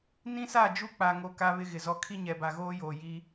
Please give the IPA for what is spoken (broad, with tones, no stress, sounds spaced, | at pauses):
n ĩ˦ s a˦˨ d͡ʒ u˦ k͡p a˨ ŋ o˨ k a˦ β ɪ˦ ɣ ɪ˨ z ɔ˦ kʰ i˦ ɲ ɛ˨ b a˨ ɣ oː˦ j oː˨ j iː˦